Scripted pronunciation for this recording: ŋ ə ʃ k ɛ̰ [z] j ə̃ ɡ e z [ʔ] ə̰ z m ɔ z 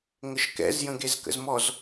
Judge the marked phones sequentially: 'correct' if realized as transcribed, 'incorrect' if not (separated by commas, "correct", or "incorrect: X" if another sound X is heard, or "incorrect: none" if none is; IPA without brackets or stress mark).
correct, incorrect: k